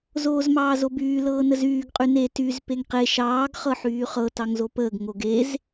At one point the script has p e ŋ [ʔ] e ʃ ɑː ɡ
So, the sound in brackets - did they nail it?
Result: no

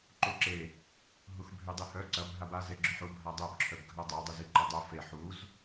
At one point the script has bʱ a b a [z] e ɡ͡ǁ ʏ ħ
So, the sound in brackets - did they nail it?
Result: yes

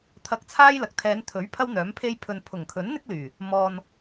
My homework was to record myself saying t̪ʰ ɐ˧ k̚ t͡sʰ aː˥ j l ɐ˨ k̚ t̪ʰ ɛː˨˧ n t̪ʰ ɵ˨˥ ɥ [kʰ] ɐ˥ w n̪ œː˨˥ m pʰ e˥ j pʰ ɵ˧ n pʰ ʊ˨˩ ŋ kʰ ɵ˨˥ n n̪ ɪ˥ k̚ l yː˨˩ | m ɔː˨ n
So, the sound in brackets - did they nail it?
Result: no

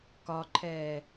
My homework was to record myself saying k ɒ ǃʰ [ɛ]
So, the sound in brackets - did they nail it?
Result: no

